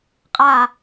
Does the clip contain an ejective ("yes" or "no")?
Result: yes